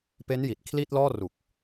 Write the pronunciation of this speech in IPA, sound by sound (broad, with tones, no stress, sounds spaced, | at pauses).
p e˦˥ n j i˨˩ t̚ kʰ l i˥˩ t̚ l ɔː˥˩ r u˨˩ k̚